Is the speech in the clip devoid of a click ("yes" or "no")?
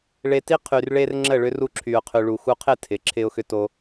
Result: no